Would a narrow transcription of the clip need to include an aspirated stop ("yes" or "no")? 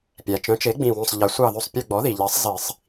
no